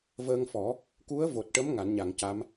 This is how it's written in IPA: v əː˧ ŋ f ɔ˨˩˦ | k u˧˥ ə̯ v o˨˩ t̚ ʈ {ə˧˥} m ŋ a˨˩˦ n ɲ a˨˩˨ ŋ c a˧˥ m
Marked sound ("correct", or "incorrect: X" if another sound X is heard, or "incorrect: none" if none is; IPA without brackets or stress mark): correct